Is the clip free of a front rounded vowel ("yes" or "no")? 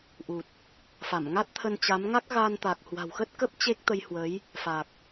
yes